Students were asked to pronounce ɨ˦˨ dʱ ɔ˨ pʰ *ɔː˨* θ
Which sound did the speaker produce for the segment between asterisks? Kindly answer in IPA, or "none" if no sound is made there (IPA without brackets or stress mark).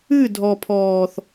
ɔː˨